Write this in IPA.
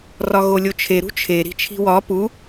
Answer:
r ɒ ɣ o lʲ o t͡ʃʰ e ɾ ṳ t͡ʃʰ e ɾ i̤ t͡ʃʰ i̤ w ɒ p u

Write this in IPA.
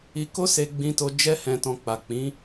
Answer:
i˧ k o˦ s e˧ ɡ͡b ĩ˧ t o˧ d͡ʒ ɛ˦ h ɛ̃˧ t ɔ̃˧ k͡p a˨ k͡p ĩ˨˦

